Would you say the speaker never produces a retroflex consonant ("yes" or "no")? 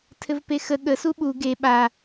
yes